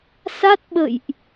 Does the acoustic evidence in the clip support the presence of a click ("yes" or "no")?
no